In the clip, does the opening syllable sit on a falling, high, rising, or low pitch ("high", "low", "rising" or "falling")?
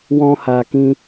high